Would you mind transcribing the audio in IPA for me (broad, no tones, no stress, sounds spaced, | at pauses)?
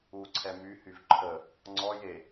u ǀʰ ɛ m y h y v ǃʰ ə | ŋ͡ǀ ɔ j e